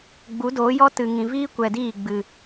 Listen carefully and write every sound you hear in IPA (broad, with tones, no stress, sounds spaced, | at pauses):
ɡ͡b u˨˦ d oː˨˦ j ɔ˦ t ɨ˨ ŋ ĩ˨ v iː˦ kʷ ɛ˨ d iː˦˨ ɡ͡b ɨ˨